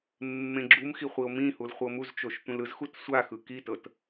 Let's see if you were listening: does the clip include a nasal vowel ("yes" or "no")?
yes